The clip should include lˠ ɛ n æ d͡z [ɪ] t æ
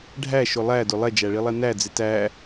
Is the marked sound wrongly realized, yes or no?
no